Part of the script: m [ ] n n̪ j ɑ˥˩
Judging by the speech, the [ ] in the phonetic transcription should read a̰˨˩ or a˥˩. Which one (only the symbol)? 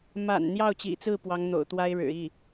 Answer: a̰˨˩